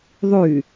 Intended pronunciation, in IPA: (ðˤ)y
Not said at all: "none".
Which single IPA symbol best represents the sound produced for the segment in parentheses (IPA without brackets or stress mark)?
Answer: ðˤ